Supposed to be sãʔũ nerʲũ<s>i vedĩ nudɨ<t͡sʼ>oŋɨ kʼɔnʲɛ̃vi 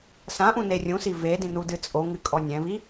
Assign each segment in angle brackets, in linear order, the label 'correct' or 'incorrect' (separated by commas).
correct, correct